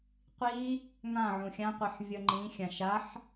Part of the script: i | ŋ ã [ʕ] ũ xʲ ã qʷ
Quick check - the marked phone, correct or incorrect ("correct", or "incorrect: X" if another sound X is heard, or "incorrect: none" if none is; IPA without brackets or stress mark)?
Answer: correct